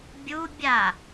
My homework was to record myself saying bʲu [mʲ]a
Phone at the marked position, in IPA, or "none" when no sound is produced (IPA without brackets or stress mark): bʲ